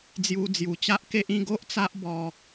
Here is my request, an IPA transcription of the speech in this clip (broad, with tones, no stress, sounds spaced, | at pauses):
d͡z j u˧ d͡z j u˨˩ t͡ɕ a˦ ʔ k e˦ ʔ ĩ˥˧ ɡ o˦ ʔ t͡s a˦ ʔ b ɔ˧